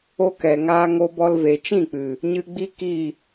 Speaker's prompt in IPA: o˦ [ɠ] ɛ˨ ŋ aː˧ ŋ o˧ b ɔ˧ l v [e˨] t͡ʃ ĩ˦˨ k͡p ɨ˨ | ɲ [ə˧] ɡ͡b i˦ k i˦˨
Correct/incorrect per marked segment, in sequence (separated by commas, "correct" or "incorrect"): incorrect, correct, incorrect